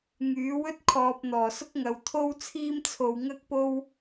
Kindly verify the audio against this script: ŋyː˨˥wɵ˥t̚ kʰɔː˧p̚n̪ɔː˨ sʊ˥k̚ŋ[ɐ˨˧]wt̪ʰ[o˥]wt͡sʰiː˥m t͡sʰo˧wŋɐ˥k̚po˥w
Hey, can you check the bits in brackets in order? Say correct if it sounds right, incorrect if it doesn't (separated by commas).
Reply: correct, correct